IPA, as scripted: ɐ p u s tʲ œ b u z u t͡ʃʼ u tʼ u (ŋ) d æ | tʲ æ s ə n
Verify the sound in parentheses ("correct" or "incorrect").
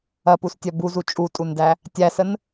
incorrect